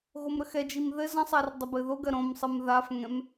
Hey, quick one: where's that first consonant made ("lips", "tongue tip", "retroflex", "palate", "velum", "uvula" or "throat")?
velum